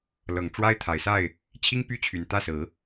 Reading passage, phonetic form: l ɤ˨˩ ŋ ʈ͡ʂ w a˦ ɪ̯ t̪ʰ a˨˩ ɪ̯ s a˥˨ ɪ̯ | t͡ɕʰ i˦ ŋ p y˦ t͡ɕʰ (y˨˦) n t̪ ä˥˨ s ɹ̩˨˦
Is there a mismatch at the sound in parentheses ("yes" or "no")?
yes